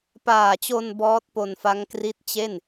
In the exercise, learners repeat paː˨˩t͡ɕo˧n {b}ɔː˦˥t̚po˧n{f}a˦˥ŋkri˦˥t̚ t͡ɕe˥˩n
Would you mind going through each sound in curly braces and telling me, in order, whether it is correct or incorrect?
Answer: correct, correct

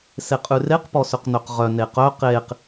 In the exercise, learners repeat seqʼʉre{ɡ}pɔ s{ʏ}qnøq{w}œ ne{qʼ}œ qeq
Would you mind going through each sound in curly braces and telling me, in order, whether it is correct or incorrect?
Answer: incorrect: q, correct, incorrect: ʁ, incorrect: q

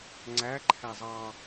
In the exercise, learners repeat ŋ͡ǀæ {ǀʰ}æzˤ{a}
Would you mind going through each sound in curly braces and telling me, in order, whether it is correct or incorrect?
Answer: incorrect: ǃʰ, incorrect: ɑ

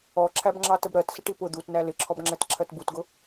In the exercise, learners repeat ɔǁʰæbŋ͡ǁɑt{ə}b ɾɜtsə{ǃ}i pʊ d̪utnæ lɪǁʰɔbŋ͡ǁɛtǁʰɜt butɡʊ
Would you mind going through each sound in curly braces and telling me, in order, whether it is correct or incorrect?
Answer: correct, incorrect: ʈ

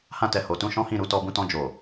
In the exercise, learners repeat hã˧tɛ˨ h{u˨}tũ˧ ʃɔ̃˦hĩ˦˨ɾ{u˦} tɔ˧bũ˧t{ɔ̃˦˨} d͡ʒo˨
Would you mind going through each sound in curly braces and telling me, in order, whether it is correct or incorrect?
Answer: incorrect: o˨, incorrect: u˨˦, incorrect: ɔ̃˧

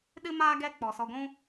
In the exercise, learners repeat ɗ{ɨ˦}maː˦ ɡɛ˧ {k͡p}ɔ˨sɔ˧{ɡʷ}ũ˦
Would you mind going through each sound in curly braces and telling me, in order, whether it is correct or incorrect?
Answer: correct, correct, correct

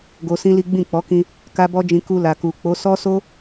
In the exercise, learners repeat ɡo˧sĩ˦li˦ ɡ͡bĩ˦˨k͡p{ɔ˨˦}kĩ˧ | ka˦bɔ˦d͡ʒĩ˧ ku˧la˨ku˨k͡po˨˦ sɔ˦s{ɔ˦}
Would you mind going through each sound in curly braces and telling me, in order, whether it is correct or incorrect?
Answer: correct, incorrect: o˦

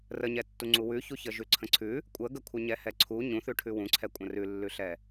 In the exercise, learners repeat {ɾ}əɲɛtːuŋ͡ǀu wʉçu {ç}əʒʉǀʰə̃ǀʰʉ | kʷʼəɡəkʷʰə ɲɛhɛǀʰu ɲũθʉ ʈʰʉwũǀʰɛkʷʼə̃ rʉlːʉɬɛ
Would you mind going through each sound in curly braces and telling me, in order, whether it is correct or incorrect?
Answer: incorrect: r, correct

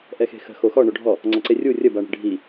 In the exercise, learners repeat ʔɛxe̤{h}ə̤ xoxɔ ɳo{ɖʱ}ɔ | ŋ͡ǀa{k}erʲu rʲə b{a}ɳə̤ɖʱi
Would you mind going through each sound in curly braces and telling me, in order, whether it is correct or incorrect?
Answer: incorrect: x, correct, incorrect: ǀ, correct

